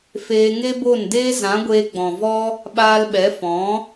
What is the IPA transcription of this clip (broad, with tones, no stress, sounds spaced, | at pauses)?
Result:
f eː˧ ŋ e˦ b o˦˨ n d eː˦ z ã˨˦ ɡʷ eː˧ ɡ͡b ɔ̃˨ v ɔ˦ | ɓ aː˧ l ɓ ɛ˨˦ f ɔ̃˨˦